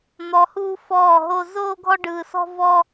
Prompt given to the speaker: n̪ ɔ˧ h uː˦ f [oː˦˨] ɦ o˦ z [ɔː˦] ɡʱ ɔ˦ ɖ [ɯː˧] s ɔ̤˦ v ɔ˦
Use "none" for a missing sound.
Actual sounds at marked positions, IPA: ɔː˦˨, oː˦, ɯː˧

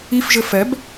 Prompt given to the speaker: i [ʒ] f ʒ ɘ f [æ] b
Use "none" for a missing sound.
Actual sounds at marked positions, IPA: none, ɛ

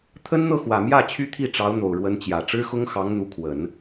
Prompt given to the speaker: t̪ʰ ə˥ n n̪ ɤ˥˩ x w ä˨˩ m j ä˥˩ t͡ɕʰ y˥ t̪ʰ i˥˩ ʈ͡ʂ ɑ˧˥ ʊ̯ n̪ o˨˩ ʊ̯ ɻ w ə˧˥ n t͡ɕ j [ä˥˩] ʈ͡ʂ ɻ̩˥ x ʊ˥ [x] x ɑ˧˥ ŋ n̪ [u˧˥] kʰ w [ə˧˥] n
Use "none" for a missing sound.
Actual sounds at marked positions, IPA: ä˨˩, ŋ, u˧˥, ə˨˩˦

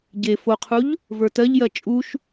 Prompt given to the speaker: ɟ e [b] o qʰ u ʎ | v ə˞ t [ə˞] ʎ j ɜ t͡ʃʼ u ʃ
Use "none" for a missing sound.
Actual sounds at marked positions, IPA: f, ɜ

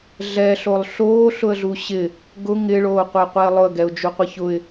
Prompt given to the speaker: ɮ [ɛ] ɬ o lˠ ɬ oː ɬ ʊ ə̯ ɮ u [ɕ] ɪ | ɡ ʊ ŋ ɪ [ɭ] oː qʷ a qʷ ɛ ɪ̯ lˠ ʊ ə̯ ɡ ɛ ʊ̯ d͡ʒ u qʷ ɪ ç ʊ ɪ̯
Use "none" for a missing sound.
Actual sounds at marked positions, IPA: ɛ, ɕ, ɭ

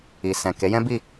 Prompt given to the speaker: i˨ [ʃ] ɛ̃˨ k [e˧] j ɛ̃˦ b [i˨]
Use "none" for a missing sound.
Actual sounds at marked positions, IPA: s, e˨˦, i˦˨

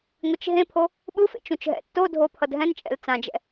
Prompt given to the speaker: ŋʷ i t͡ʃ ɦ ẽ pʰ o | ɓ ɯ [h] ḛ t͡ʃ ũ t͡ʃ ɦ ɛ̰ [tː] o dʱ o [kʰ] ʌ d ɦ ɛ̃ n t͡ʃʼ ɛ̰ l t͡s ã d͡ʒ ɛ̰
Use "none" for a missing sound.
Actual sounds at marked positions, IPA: f, tː, pʰ

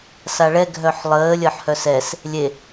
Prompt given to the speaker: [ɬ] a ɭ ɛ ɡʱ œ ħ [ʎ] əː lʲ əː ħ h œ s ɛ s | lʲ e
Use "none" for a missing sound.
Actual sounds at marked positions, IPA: s, lˠ

